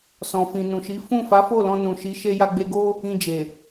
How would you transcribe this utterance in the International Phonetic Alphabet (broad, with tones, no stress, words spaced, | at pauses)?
sɔ̃˨fĩ˨nũ˨ʃi˨˦ fũ˦˨fa˨˦fo˦˨ lɔ̃˧nũ˨ʃi˨˦ ʃe˧ja˧ɡ͡be˧ɡo˦ | ĩ˧d͡ʒe˨